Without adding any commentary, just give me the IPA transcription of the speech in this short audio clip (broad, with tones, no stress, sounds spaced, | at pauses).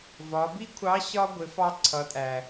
v ɒ˩˧ b i˥ kʷʰ ɑ˧˥ ɕ ɒ˥ ɡʷ ɪ˩˧ f ɑ˧ ǀʰ ʌ˩˧ tʼ æ˩